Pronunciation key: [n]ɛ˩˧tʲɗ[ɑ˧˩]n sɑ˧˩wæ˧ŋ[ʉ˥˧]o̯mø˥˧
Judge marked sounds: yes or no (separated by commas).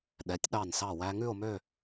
no, yes, yes